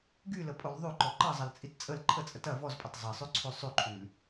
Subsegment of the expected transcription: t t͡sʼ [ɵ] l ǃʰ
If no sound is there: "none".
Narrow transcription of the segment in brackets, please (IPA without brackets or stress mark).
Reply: ə